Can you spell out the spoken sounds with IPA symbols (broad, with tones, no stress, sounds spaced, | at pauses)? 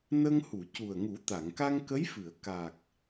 n ə˧ ŋ h u˨˩˨ c u˨˩ ə̯ ŋ u˨˩˦ t̪ a˨˩˨ ŋ k a˧ ŋ k ə˧˥ j f ɨ˨˩˨ ə̯ k a˨˩ k̚